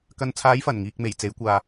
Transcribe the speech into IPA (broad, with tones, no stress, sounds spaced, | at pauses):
k ɐ˨ n t͡sʰ aː˨˧ j f ɐ˨˩ n ŋ iː˨ k̚ m e˨˩ j t͡s e˨˥ j kʷ aː˨